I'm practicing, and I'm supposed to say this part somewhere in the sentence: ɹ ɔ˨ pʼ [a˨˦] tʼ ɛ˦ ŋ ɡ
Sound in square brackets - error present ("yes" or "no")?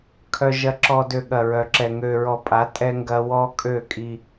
no